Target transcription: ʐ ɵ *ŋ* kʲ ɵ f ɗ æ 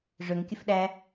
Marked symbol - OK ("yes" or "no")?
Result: yes